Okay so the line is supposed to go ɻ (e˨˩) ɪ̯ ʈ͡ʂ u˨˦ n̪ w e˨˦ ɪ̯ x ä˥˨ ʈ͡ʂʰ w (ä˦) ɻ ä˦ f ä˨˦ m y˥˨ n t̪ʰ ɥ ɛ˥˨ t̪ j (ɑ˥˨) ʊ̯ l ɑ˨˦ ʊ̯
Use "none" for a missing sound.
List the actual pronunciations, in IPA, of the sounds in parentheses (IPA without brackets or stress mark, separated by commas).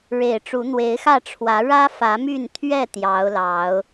e˨˩, ä˨˦, ɑ˨˦